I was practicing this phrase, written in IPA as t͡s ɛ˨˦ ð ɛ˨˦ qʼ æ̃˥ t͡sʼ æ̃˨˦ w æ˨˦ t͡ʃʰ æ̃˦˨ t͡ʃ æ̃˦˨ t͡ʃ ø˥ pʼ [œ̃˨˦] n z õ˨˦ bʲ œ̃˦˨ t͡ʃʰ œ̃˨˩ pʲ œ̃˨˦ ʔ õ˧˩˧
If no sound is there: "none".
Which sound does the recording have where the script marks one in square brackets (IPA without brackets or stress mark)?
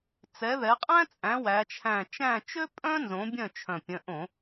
œ̃˥